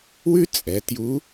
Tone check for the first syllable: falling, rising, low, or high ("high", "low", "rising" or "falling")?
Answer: high